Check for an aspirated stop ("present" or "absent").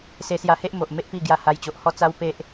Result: absent